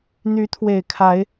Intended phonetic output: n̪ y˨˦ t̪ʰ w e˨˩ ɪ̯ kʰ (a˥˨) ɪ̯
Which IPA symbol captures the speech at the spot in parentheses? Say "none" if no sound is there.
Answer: a˨˦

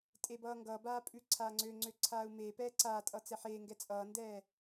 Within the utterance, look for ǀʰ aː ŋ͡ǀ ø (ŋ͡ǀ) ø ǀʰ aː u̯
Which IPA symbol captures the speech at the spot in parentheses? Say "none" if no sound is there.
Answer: ŋ͡ǀ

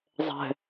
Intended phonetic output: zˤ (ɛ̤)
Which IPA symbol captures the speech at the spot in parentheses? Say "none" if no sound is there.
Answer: ɛ̤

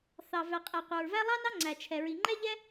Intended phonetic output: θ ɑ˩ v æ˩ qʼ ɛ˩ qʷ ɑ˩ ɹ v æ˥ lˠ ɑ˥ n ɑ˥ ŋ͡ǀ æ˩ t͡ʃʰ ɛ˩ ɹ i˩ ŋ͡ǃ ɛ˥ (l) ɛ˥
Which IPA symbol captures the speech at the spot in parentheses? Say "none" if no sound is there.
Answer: ʎ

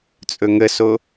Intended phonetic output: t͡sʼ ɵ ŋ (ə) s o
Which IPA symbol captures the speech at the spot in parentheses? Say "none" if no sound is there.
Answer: ə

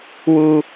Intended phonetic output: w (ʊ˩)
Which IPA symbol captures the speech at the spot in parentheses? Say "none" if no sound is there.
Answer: u˩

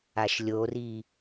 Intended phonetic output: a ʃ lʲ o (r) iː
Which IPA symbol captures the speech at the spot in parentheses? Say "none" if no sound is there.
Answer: r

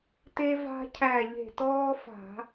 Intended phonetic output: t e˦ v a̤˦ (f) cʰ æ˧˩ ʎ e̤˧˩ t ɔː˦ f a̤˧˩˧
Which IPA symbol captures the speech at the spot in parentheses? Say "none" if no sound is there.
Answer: none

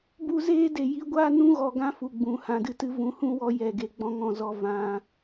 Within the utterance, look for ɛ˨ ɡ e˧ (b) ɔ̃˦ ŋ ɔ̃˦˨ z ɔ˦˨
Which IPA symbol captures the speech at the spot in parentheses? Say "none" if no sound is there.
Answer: ɡ͡b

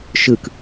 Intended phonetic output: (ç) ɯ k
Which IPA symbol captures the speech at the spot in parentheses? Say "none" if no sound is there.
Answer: ʃ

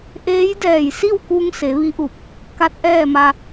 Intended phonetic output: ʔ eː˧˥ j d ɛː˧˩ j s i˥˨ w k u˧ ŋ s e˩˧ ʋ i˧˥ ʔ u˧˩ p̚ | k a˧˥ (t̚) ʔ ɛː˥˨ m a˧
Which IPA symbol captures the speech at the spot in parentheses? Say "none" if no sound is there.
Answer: t̚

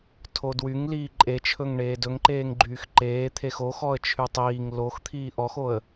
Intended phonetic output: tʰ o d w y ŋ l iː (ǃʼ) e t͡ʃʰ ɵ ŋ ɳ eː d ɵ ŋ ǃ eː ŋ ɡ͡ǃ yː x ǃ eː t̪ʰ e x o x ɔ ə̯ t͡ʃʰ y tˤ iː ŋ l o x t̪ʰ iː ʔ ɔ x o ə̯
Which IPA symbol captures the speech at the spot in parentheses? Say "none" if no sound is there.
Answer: ǃʼ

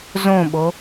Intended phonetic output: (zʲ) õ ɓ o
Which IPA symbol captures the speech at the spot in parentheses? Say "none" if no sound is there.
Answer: z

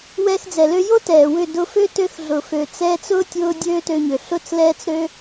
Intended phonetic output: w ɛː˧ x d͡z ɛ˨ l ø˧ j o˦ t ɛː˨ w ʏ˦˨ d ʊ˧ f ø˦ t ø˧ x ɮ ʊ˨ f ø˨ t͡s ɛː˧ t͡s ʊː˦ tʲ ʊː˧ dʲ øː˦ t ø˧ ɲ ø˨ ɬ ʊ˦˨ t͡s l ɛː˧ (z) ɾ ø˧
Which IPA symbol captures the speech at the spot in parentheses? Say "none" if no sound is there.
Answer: t͡s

